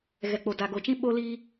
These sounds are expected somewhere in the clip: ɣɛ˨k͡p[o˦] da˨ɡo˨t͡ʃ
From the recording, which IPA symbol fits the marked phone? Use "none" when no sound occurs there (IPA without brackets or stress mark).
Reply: o˨